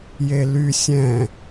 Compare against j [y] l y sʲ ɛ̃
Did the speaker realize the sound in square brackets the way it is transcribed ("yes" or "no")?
no